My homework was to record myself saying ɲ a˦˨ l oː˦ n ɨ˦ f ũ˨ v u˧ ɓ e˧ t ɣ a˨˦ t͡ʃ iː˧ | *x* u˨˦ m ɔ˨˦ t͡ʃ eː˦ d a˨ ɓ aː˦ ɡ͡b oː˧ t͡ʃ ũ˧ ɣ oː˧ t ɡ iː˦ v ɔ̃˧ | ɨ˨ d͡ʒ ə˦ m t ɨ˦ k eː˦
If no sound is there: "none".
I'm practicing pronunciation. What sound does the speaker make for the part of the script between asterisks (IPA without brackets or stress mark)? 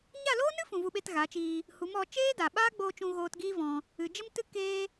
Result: h